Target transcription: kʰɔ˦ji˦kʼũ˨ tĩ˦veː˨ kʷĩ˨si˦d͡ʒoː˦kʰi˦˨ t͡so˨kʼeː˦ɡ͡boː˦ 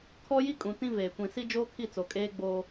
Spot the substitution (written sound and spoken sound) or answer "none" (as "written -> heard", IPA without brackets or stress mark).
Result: none